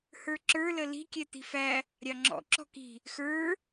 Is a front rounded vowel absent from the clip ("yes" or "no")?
yes